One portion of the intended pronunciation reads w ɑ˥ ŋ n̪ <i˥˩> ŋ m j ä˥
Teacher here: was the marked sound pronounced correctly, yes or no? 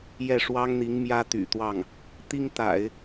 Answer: no